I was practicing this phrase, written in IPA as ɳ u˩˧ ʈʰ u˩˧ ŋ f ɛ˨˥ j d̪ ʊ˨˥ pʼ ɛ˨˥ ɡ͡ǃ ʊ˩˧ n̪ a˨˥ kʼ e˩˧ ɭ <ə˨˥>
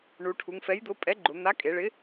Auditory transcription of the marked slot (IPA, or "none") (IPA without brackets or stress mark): ɪ˨˥